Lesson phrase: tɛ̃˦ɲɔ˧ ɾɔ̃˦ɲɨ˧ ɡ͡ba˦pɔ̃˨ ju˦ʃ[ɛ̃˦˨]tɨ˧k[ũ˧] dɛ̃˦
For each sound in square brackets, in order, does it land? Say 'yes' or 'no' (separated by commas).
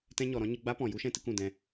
no, no